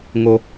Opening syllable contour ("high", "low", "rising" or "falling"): high